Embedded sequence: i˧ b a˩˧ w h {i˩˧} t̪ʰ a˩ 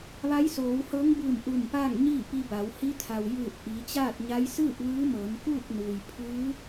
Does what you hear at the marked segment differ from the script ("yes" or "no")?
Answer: yes